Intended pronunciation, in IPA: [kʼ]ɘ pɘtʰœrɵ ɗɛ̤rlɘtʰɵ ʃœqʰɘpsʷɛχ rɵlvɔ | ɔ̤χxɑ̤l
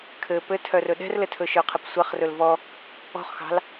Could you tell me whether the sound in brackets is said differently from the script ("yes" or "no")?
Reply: yes